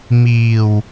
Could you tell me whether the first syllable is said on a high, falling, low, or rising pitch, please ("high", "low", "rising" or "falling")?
low